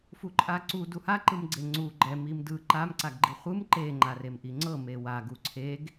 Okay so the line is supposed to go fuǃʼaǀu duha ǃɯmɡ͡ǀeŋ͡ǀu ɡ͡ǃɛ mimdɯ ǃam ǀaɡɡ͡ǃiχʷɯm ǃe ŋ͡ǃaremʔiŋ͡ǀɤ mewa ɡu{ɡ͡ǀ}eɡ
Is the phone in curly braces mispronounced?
yes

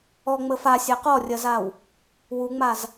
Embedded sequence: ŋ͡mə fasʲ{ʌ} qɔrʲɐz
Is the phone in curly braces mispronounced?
yes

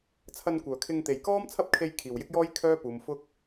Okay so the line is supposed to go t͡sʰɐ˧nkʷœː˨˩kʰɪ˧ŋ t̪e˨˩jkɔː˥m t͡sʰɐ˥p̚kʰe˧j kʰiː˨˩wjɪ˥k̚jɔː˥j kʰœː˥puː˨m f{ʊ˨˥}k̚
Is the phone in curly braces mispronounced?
yes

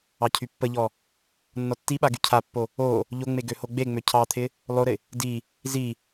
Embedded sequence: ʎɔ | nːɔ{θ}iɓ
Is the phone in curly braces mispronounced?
yes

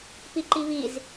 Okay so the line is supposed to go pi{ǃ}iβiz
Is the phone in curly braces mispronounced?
no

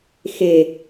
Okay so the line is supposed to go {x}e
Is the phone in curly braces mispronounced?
no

